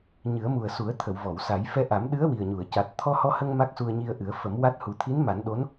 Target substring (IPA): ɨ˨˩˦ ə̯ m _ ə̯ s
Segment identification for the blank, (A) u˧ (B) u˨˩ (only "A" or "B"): B